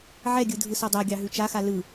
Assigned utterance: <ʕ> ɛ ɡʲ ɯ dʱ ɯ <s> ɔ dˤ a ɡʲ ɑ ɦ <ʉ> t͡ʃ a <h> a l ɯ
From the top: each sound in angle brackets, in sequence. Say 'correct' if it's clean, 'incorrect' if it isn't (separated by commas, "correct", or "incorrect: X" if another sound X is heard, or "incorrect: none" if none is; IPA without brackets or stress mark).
correct, correct, correct, incorrect: x